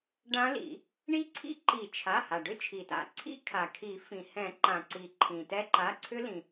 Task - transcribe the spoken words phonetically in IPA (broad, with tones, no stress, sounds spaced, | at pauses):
ɖ ã˦˥ l ḭ˨˩˦ | ɳ i˦˥ ǀʰ ḭ˦˥ ǃ i˨˩˦ t͡ʃʰ a˩˧˩ h a˩ ɖ ʏ˦˥ t͡ʃʰ i˩ t a̰˩ ǀʰ ḭ˦˥ kʰ a˩ kʰ i˨˩˦ f ĩ˩ h ɛ̃˨˩˦ ǃ ã˩ ǀ i˩ ǃʰ ĩ˩ t ɛ˦˥ ǃ a˩˧˩ ǀʰ ʏ˦˥ l ĩ˩